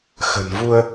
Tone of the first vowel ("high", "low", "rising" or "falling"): low